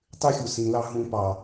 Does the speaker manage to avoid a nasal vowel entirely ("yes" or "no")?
no